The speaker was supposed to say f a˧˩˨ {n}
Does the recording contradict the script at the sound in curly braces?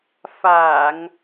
yes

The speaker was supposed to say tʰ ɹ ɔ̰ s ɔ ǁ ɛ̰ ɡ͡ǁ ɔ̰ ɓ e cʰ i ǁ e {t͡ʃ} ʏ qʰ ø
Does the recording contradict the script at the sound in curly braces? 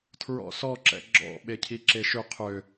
yes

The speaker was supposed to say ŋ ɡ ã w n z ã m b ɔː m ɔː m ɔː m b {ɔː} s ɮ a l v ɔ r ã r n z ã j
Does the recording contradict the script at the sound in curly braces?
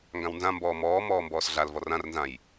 no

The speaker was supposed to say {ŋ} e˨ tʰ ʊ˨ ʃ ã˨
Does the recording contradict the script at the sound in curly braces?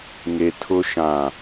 no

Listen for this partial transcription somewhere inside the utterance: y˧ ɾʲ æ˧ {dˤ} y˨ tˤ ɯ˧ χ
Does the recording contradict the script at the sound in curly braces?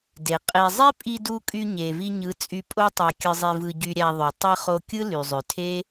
yes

